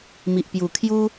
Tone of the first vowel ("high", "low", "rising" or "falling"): low